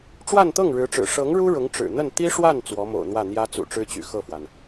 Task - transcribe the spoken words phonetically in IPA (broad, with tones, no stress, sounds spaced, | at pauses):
ʈ͡ʂ w a˥˧ n t̪ ɤ˥˩ ŋ ɻ ɻ̩˧˥ ʈ͡ʂ ɻ̩˨˩ ʂ ɤ˧˥ ŋ ɻ u˥ ɻ ʊ˧˥ ŋ ʈ͡ʂ ɻ̩˨˩ n̪ ə˥˩ n t̪ i˥ ʂ w a˥˩ n t͡s w ɔ˧˥ m o̰˨˩ ʊ̯ n̪ w ä˥˩ n̪ j ä˥ t͡s ṵ˨˩ ʈ͡ʂ ɻ̩˥ t͡ɕ y̰˨˩ x ɤ˥˩ f w a˩ n